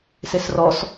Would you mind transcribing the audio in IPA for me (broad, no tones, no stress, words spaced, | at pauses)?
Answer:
sesrɔs